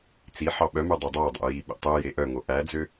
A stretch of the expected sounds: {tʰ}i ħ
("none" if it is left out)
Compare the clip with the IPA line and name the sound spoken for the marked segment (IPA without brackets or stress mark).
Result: t͡s